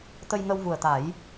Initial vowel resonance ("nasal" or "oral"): oral